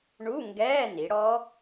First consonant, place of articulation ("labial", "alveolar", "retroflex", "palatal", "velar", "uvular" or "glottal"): retroflex